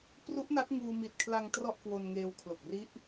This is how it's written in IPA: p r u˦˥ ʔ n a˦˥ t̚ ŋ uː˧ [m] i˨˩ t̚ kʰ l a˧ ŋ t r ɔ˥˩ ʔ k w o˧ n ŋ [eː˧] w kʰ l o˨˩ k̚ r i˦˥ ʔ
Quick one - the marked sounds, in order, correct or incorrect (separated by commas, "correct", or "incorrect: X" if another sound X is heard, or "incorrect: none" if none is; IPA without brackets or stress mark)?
correct, correct